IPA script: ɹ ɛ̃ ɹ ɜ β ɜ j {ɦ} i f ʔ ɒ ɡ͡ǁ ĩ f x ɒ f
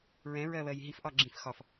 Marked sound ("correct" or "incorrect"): correct